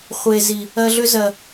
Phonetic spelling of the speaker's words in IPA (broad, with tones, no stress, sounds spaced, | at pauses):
χʷ e˨ z i˨ | ɜ˧ ɮ ʏ˦ z ɜ˨